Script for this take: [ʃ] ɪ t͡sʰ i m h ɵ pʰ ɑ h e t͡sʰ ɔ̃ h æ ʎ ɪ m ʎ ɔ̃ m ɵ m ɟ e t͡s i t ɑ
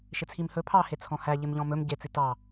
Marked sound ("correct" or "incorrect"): correct